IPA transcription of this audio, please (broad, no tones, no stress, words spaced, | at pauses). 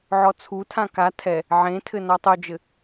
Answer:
ʕɔt͡sʰutʰã ka tʰɛ | ʕẽtʰɘ nɔtˤod͡ʒɘ